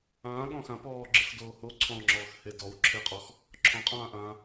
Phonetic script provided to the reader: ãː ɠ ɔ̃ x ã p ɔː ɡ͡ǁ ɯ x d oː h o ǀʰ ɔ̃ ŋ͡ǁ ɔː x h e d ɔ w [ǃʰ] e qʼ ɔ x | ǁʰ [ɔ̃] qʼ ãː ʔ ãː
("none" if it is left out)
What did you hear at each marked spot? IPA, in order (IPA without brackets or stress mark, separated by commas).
ǁʰ, ɔ̃